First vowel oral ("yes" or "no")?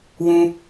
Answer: no